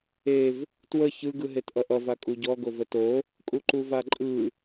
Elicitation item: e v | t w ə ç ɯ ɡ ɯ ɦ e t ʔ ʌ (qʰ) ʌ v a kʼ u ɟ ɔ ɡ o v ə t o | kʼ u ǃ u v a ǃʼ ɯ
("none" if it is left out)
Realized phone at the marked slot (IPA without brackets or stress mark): ʔ